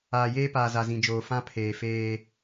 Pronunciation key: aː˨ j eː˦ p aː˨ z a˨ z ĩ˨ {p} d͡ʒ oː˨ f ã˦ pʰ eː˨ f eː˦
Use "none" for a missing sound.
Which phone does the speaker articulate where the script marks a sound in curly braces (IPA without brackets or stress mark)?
none